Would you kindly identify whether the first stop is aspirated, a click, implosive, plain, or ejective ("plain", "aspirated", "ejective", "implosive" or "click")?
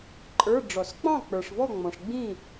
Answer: click